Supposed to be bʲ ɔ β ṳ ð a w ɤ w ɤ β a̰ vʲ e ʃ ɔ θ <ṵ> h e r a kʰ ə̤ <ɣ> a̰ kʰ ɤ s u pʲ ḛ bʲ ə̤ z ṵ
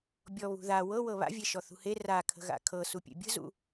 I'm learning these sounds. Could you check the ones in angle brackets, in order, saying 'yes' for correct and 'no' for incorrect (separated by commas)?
no, yes